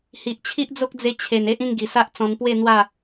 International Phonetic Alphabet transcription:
h i˨ ʔ t͡ɕʰ i˦ ʔ d͡z o˦ k̚ d͡z e˧ t͡ɕʰ e˨˩ n e˦ ʔ ĩ˥˧ ŋ ɡ i˨˩ s a˦ ʔ t͡s ɔ̃˧ n p w e˥˧ n̪ w a˥˧

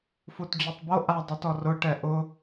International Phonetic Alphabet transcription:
f u t d͡ʑ o tˤ b o ʔ a dˤ i t ɔ r ʊ ʈ ɛ ʔ ʊ

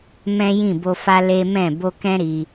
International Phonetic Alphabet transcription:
m ɛ̃˦ j ĩ˦˨ b o˧ f a˦ l e˦ m ɛ̃˦˨ b o˧ k ɛ̃˦ ɾ i˧

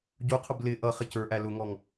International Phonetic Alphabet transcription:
ɟ u qʰ ʊ b l ɪ ʔ ʌ χ ɪ c ə˞ ʔ æ l ʊ ŋ ɔ ŋ

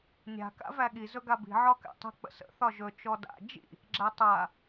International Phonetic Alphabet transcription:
nʲ a̤ k a̰ v æ ɠ i z ɵ ɡ a b i̤ ʕ ɒ k æ̰ tˤ ə̤ k͡p ə̰ s ə̰ θ ɒ ʒ ɵ t͡ʃ ɔ d a̰ d͡ʒ ḭ | ɡ͡ǁ æ tˤ a

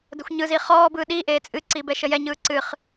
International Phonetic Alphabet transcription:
d ə xʷ ɲ ɯ z i χ ɔː b ɯː ɗ i ʔ eː t͡sʼ ɨ ǀ i b ɛ ʃ ə j ɛ ɲ ɯː ǀ ɨ χ

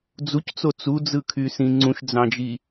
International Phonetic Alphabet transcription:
d͡z u c t͡s o t͡s u d͡z ɯ kʰ y s ĩ ŋ͡ǀ ũ ʃ d͡z ɑ̃ d͡ʒ i

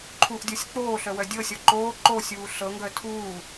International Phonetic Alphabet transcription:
ǃʰ u ʔ dʲ ɔ sʲ k͡p oː ɬ œ w œ dʲ ɤ sʲ ɔ ǃ oː ǃ o sʲ uː ɬ ɤ ŋ ɡ œ tʰ uː

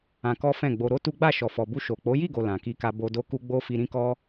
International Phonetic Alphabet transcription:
ã˧ k ɔ˦ f ɛ̃˦˨ ɡ͡b o˧ ɾ o˦ t u˦ ɡ͡b a˦˨ ʃ ɔ˨ f ɔ˨ b u˧ ʃ o˨ k͡p o˨˦ j i˦˨ ɡ o˨ l ã˨ k i˧ k a˧ b o˧ d o˦ k u˦ ɡ͡b o˦ f i˧ ɾ ĩ˦ k ɔ˦

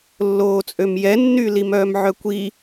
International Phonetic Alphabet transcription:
lː oː t͡sʼ ø m j ɛ nː y l i m œː m ʕ œ kʷ i

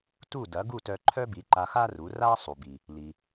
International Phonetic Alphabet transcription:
t u˥˩ d ɐ˩˥ ɡ u˥˩ t œ˧ ǃʰ œ˥ b i˩˥ ǃ a˧ x a˥ r u˩˥ r a˥ sˤ u˩ b i˩ | l i˩

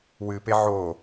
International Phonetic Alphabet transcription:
w ɨ p e ʕ o

